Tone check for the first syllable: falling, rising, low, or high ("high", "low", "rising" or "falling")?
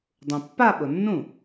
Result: low